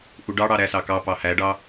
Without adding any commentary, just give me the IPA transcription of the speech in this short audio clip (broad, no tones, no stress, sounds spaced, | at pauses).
ʔ u ɖ ɑ ɽ ɑ ɾ æ s ɑ k ɑ p ɑ h æ ɖ ɑ